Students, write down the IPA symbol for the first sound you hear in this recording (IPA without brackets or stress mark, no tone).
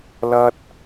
l